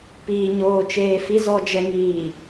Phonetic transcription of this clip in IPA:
p iː˨ ɲ oː˨ t͡ʃ eː˨ f i˨ z ɔ˨ d͡ʒ ɛ˨ ŋ iː˨

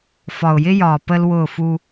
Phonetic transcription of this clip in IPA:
f ɒ˨ ʊ̯ j ɪ˦ j ɒː˨ p ə˦ l w ʊː˦˨ f u˦

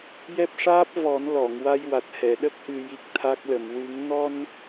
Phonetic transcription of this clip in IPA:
j ɛ˦˥ p̚ ʂ aː˦˥ p̚ v ɔ˨˩˦ n l ɔ˨˩˨ ŋ w a˧ j w a˨˩ t̚ h ɛ˨˩˨ ɗ ə˦˥ k̚ ʔ ɨ˧ j i˦˥ k̚ t̪ʰ a˦˥ k̚ l ə˨˩˨ m w ɨ˨˩˦ ŋ n ɔ˧ n

